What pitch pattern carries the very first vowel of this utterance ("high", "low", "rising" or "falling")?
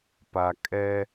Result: low